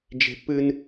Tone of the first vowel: high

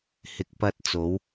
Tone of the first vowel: low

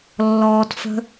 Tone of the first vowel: low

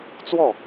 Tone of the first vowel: falling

